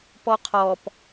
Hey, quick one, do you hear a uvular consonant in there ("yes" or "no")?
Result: yes